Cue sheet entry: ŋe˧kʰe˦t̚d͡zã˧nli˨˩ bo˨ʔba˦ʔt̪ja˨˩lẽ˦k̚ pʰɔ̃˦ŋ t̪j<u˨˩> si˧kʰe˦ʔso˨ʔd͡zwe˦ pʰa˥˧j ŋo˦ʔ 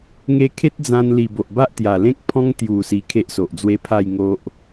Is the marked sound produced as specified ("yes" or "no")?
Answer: yes